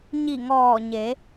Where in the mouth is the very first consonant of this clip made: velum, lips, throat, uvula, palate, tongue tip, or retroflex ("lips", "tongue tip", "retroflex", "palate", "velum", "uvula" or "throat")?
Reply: palate